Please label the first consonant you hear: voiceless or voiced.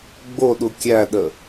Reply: voiced